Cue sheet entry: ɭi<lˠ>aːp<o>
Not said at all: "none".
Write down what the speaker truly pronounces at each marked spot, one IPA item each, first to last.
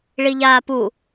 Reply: ʎ, u

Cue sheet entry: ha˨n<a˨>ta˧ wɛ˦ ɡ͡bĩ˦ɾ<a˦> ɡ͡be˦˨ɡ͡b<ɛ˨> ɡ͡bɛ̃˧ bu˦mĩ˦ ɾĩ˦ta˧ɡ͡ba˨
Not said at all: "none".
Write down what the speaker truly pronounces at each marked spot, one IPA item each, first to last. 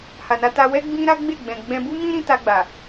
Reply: a˧, a˦, ɛ̃˨

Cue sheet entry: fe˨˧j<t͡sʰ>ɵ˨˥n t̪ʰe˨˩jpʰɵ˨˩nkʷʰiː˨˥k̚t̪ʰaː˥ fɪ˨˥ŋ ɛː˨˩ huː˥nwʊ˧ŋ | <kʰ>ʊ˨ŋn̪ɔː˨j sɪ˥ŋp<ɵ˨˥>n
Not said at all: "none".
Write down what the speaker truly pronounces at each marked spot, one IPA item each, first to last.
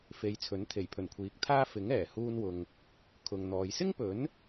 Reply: t͡sʰ, kʰ, ɵ˨˥

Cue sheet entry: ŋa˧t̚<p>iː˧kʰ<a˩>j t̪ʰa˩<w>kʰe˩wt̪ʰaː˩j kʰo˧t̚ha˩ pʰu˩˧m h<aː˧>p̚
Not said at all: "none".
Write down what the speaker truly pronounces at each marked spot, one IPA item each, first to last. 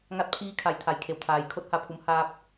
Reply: pʰ, a˩, j, aː˧

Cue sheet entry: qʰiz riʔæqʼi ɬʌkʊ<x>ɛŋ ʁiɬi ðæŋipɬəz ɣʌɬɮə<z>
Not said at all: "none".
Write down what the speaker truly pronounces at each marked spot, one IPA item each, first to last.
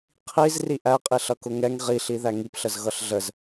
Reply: ŋ, z

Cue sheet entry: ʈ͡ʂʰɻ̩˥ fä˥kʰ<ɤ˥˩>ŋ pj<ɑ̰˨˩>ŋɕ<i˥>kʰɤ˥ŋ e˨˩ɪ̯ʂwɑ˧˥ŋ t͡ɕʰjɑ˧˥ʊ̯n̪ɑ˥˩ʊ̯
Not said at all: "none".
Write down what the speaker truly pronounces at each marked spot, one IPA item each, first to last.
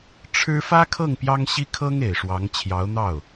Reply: ɤ˥˩, ɑ˥, i˥

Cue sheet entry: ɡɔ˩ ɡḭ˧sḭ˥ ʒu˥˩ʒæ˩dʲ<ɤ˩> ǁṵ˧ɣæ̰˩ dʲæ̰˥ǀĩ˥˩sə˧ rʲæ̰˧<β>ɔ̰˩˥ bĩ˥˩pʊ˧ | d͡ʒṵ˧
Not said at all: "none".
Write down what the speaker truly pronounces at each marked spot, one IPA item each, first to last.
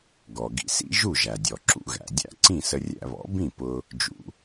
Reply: ɔ˩, β

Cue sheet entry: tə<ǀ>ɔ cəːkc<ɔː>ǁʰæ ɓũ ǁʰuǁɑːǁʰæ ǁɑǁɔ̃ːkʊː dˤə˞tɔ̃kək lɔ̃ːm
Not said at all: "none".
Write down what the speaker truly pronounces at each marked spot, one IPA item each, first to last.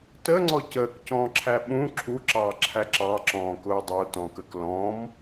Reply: ŋ͡ǀ, ɔ̃ː

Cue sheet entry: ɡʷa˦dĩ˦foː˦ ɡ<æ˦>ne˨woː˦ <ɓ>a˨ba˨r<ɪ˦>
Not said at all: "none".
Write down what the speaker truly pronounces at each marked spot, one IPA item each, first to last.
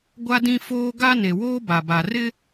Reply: a˦, b, ɪ˦

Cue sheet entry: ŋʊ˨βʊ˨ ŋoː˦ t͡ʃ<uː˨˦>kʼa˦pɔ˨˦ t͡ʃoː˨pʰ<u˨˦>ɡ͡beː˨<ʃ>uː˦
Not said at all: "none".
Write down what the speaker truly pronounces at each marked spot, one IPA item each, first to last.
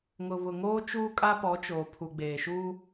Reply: uː˦, u˨, ʃ

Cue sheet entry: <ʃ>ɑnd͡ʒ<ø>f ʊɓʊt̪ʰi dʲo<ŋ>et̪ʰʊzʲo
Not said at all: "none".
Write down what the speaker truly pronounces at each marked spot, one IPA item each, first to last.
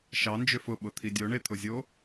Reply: ʃ, ø, ɳ

